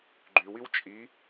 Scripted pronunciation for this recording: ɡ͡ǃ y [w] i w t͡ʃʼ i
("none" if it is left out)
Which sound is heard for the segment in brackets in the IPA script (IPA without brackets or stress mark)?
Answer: w